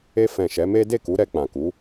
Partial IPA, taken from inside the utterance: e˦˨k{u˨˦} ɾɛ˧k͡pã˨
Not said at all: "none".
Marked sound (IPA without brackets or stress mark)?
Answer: u˨˦